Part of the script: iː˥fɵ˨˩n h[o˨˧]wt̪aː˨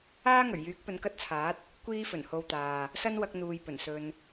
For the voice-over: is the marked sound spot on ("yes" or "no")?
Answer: no